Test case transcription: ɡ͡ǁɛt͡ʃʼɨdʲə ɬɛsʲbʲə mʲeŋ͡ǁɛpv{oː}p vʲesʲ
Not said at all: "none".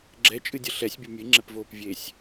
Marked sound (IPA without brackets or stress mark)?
oː